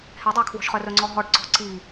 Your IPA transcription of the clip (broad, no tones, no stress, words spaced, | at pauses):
hɛdˤɑ kʰwɔ̤ʃχœrɵŋ͡ǀɔ ɦɔɖǀɔ̤ ǀi